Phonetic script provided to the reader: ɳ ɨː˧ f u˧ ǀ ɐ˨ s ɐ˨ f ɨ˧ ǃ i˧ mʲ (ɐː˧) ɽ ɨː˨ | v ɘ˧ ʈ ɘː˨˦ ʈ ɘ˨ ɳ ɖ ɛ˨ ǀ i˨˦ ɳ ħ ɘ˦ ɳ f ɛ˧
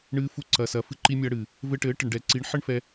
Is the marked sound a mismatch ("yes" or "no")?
no